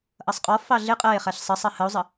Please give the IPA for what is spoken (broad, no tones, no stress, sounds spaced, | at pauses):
ʔ ʌ sˤ qʼ ɔ f ɑ ɮ ɪ qʼ ɜ e̯ χ æ ɬ sˤ ə sˤ ɜ h ə o̯ zˤ ə